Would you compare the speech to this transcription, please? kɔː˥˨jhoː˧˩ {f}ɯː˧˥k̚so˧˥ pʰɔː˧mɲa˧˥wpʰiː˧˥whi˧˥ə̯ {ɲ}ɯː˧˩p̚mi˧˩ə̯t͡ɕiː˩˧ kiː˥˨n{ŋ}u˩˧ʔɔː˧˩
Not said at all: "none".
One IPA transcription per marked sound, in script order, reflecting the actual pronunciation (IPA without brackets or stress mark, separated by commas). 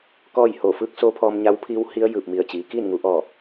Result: f, j, ŋ